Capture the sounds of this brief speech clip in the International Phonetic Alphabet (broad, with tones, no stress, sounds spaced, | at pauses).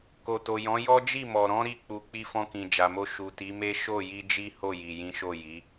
k o˨ t o˨ j ɔ̃˨˦ j ɔ˦ d͡ʒ i˦˨ m ɔ˨ ɾ ɔ̃˨˦ ɾ i˧ k͡p u˨ k͡p i˧ f ɔ̃˧ k ĩ˨ d͡ʒ a˨ m o˧ ʃ u˨ t i˨˦ m e˦ ʃ o˦˨ j i˧ d͡ʒ i˦ h o˦˨ j i˨ j ĩ˨˦ ʃ o˦˨ j i˨˦